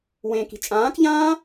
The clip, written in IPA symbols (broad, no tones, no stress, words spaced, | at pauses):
wẽki̤ t͡ʃʼãːkʎãː